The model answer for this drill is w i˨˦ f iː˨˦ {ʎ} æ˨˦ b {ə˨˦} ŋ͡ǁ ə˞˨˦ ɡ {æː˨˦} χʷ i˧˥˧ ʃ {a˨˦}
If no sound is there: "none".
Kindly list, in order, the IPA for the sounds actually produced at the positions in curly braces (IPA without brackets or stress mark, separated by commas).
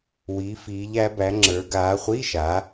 ʎ, æ˨˦, aː˨˦, a˨˦